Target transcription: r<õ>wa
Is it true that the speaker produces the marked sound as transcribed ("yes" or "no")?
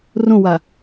yes